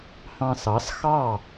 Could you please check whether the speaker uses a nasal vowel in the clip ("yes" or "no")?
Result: yes